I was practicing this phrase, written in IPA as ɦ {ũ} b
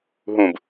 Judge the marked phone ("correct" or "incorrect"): correct